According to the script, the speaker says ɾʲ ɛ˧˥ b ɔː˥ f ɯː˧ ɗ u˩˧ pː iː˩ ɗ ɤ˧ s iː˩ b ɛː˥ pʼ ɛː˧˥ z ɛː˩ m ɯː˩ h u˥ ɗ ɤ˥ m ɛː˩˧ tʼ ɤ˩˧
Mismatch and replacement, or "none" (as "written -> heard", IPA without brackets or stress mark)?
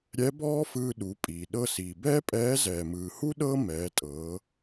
pː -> pʼ